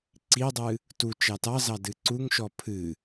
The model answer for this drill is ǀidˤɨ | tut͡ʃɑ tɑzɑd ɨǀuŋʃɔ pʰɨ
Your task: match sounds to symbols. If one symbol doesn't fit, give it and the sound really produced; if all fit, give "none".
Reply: none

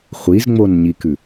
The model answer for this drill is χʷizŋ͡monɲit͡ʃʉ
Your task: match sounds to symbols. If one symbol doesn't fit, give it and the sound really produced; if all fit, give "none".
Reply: t͡ʃ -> k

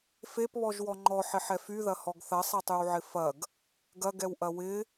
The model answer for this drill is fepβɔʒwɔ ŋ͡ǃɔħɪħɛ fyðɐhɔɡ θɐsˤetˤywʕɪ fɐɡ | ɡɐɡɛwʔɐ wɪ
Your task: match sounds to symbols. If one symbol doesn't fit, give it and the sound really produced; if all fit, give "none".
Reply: none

